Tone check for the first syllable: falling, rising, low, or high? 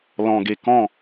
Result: low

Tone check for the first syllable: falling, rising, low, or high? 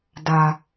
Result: low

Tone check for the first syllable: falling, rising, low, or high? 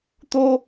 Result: high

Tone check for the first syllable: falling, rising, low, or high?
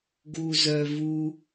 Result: low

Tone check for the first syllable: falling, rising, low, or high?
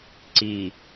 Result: low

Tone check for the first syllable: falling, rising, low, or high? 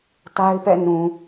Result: high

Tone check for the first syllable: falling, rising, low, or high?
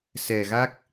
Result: low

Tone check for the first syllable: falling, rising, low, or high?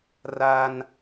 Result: high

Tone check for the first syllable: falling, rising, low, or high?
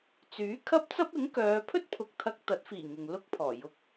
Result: rising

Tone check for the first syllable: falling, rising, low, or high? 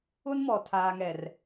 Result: high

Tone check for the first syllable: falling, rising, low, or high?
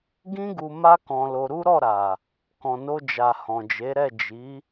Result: high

